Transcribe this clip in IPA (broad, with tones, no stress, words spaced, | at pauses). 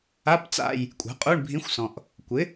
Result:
a˧˥˧pt͡sa̰˦˨j | kʷʼa̤˩˥qʼu˧˥˧ɳbʱĩ˧˥xʷsɔ̃˨ʔ | kʷɪ˩˥